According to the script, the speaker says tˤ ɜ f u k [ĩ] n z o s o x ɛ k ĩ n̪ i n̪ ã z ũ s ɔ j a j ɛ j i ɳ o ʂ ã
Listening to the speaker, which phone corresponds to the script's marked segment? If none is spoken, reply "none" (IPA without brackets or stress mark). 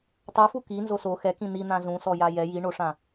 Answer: i